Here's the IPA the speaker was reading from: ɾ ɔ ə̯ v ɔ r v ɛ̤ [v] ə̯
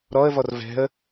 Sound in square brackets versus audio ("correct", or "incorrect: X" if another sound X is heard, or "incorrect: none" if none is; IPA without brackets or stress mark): incorrect: none